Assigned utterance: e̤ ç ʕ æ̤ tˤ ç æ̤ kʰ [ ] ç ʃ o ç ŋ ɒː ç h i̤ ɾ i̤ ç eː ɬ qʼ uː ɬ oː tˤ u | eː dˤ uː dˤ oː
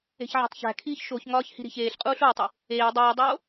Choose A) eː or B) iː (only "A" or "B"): B